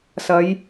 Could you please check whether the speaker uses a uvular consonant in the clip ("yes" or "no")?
no